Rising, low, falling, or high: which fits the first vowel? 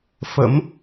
rising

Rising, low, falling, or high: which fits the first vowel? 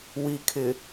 low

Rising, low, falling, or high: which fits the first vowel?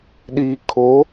low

